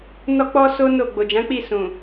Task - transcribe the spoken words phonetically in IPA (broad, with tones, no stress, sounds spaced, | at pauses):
n ɔ˦ k͡p ɔ˦ s o˦ n o˦˨ ɡ͡b o˨ d͡ʒ ã˨˦ k͡p i˦˨ s ũ˨